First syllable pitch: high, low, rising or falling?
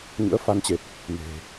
rising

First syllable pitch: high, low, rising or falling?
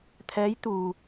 rising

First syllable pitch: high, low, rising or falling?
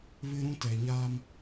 high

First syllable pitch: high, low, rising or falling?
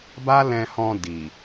high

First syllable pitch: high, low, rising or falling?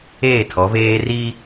falling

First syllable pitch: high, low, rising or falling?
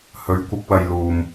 rising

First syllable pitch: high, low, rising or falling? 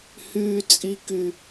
low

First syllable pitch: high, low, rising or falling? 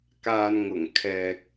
low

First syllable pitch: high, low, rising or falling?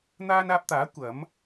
high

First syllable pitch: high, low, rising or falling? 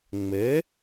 rising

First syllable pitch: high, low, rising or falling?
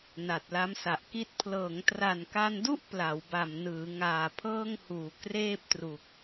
low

